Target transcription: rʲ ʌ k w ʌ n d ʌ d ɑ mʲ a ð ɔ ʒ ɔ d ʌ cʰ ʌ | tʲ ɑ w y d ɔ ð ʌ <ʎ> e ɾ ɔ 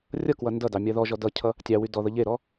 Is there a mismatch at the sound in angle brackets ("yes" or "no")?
no